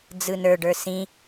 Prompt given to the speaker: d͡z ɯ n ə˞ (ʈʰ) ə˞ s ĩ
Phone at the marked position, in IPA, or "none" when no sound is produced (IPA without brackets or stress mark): ɖ